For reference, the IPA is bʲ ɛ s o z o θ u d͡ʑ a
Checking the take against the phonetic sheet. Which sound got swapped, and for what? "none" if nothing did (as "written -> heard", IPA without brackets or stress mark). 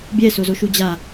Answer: θ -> ʃ